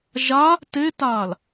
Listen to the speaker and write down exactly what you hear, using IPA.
ʒa | tetaːl

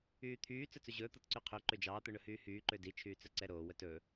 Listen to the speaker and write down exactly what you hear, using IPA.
yːt̪ʰyː t͡sɵt͡sɵʑɵː t̪ɔtǀyqʰø ǃød͡ʒɑː t̪ɵɳɵhyːhyː ǃødi t͡ʃʰyːt͡sœǀɛɾoː wœtɵ

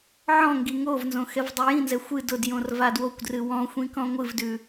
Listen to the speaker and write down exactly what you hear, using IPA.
ʕɔ̃ŋɡi ŋovnzõ xɛvdˤɨjĩnzɛ xʷɨ dʊdjõr vadwokʷdrɨ wɔ̃xʷĩ kɔ̃ŋʷɨvdʉ

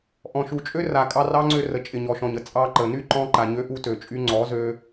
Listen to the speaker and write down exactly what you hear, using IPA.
ʔɔ̃˨ʃu˨t͡ʃʼø˦ra˨ kʼɑ˧rɑ˦ŋ͡ǀø˧ rə˨ t͡ʃʼɪ˨ɲɔ˨ʃɔ̃˨ɲə˧ t͡sʼɑ˧ ǃə˨ ny˦ǃɔ̃˧ ǃa˨ɲø˧ʔu˧ tø˨t͡ʃʼy˧ŋ͡ǀɔ˨˦zø˧

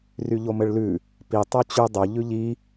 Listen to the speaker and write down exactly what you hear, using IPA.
ryʎomɘɭlʉ | pi tˤot͡ɕy dˤo ʎʉʎi

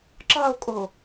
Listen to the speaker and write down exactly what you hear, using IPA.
ǁɑo̯kʼo

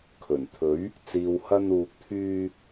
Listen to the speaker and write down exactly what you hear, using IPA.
kʰɵ˨˩n t̪ʰɵ˨˥ɥ | t͡siː˨whɐ˧nuː˨k̚t̪ʰyː˧

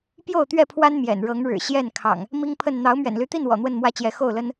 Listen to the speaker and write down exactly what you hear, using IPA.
pjo˥˨ʊ̯t̪ɥɛ˥˨pʰwa˦n mjɛ̰˨˩n ɻɤ˨˦ŋɻɻ̩˨˩ ɕjɛ˥˨n kʰɑ̰˨˩ŋ | mi˦ŋpʰə˥˨n n̪ɑ˨˦ʊ̯mɥɛ̰˨˩nly˨˦t̪i˥˨n wɔ̰˨˩n̪wə˥˨nmwä˦t͡ɕjɛ˨˦ xo˥˨ʊ̯lə˦n

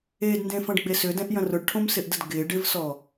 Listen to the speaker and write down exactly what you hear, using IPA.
edndẽfɐ̃ɖɡ͡be sʏdɛ̃ʔjɐ̃ rʊɖʈʰõmsɪʔdəd ɡɪ ɖɪvsɔ

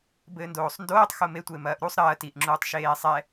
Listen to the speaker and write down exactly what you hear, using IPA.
bɘːndoːsˤndoːtˤ xome tʷemɐːʔɾusˤ ɾɐː tiʔ ŋ͡ǁuːtˤʃeːsˤɛ

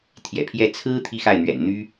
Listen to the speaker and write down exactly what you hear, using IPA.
t̪ʰjɛ̰˨˩pʰjɛ˥˩ t͡sʰɹ̩˥ t̪ʰi˥xa˥˩ɪ̯n̪ɥɛ̰˨˩n n̪y˥

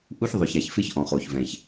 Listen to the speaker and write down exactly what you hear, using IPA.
ʔu˦çðˤʊ˨ça˨çfɪ˦ç ʔɔ̃˨χo˨çvɛ̃˨ç

